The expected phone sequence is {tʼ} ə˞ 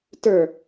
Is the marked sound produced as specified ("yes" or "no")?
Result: no